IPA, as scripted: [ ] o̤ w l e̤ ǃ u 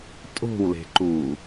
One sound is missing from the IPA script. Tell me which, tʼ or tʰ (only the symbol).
tʼ